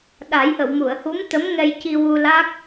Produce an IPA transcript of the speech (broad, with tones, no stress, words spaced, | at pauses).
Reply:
ɗa˨˩˦jʔə˨˩˨w mu˨˩˨ə̯hu˧˥mt̪ə˧˥m ŋɛ˧jci˧wu˧la˦˥k̚